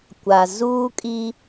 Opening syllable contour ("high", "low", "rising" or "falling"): low